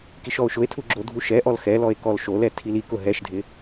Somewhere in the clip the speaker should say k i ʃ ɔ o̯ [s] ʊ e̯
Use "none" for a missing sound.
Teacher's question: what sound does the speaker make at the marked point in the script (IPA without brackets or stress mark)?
ʃ